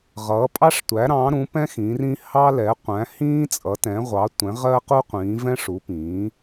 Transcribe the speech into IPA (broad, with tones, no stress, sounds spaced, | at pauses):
ʁ ʌː˩˥ pʼ ɑ˥ ʂ tʷ æ˩˥ ɾ ɑ̃˩˥ ɾ ũ˩˥ p ɛ̃˥ x ĩ˩˥ r ĩ˥ h ɑ˥ l ɛ˩˥ qʷ æ̃˩˥ h ĩː˥ t͡sʼ ʌ˩˥ t ɛ̃˩˥ ʁʷ ɑ˩˥ tʷ ɛ̃˩˥ ʁ ɜ˥ q u˥ qʷ ĩː˩˥ v ɛ̃˥ ʂ u˩˥ p ĩː˩˥